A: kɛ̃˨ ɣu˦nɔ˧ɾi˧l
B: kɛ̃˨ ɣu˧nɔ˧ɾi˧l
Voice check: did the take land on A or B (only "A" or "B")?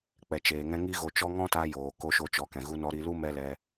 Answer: B